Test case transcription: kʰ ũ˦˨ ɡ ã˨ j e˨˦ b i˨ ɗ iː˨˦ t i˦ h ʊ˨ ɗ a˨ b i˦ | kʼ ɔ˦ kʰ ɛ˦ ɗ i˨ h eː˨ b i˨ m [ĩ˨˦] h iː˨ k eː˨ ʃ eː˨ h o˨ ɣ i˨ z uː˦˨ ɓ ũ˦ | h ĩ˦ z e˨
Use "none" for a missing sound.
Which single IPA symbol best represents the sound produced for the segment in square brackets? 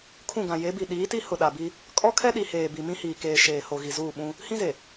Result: ĩ˦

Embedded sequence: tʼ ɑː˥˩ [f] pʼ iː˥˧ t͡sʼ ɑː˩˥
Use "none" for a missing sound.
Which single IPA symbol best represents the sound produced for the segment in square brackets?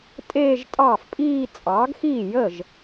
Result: f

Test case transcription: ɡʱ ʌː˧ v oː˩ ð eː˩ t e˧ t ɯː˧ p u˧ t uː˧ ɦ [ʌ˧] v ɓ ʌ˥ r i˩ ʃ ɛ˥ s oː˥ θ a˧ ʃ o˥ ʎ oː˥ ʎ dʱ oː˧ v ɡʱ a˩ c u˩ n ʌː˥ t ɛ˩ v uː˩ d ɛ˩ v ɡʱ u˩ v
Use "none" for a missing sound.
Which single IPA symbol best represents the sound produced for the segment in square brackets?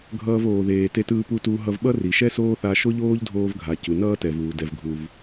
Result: ʌ˧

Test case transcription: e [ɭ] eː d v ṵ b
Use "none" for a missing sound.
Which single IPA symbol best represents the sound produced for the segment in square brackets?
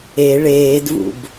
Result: ɭ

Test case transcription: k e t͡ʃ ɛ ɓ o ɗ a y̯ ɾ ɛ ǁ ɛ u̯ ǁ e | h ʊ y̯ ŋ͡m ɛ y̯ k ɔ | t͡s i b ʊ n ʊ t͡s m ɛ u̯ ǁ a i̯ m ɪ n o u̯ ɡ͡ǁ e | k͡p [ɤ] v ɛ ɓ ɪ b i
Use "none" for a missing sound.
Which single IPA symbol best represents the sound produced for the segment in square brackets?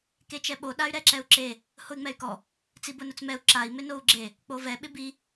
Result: o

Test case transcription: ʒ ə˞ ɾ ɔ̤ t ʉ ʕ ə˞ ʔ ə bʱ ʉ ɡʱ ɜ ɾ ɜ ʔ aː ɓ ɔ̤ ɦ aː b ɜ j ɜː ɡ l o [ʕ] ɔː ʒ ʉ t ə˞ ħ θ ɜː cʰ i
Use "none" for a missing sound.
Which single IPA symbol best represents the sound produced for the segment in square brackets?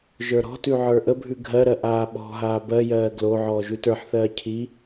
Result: ʕ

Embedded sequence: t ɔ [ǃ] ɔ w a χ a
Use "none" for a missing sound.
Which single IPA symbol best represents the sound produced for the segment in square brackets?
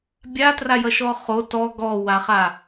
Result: ɡ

